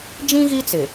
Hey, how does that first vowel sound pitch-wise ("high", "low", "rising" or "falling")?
high